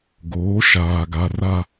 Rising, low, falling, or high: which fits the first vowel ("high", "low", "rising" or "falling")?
rising